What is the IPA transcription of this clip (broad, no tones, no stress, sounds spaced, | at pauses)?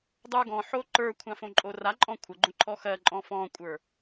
dˤ ə˞ ɡ ɔ̃ ħ o ǃ ə˞ kʷʰ ã f õ ǃʼ o r a ǃʼ ɔ̃ kʷʰ ə ɡ͡ǃ õ ǃʰ ɔ x ɜ ǃʼ ɔ̃ f ɔ̃ kʷʼ ə˞